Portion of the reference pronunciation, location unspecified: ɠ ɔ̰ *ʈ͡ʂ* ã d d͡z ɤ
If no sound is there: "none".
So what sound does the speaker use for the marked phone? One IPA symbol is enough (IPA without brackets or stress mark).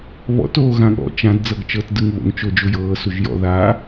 t͡ʃ